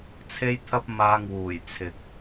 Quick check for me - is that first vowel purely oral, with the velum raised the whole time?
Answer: yes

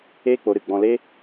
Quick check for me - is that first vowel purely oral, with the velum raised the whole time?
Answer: yes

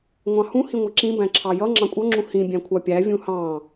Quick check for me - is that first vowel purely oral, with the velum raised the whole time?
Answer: no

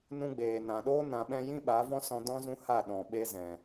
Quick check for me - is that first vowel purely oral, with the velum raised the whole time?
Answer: no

